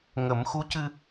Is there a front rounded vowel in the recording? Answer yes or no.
no